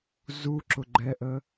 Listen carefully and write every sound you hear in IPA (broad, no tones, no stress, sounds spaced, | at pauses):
z u ǁ ʊ ɡ͡ǃ ɛ ʔ ə